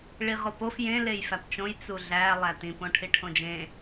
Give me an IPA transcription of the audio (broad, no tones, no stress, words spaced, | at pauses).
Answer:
ɭiʁopof jẽ lejfæpt͡ʃõj t͡suɮæ lˠætĩ põʈʰiʈʰõd͡ʒẽ